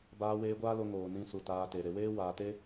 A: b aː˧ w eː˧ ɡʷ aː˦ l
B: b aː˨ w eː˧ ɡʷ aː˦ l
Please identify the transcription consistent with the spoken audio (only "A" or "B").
A